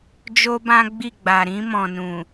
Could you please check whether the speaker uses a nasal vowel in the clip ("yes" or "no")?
yes